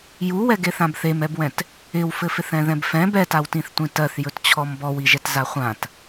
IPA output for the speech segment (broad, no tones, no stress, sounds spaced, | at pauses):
j u w ɛ ɡ e θ ã b θ e m ɛ b w ɛ̃ t | ɪ w f ɘ f ɪ θ ɛ̃ ð ɛ̃ b f ɛ̃ b ɛ t a w t ĩ θ tʷ ĩ t ɜ θ j ɵ t t͡ɕʰ ɔ m b ɔ w i ʒ ɛ t z a χʷ ã t